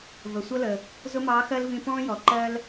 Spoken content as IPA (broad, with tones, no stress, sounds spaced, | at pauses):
v ə˩ sʷ ʌ˥ l ə˩ | z ʊ˥ m ɑː˧˥ x ɜ˥ l v ĩ˧ p ɔ̃ː˥ j ɔ˩ ǃ ɜ˥ l